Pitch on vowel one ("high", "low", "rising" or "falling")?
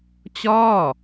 falling